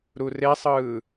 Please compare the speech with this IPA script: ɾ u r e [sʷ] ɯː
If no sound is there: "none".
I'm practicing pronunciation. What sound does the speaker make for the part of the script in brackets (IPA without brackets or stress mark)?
sˤ